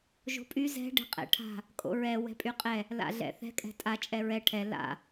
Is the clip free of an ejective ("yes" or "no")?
no